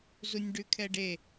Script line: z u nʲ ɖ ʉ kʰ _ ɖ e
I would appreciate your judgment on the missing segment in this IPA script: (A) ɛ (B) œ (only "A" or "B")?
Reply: A